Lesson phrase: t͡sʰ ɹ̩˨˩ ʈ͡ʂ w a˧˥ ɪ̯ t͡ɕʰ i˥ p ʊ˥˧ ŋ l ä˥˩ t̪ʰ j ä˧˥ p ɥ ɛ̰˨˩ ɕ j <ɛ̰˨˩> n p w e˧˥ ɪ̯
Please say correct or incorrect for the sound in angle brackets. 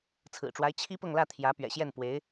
incorrect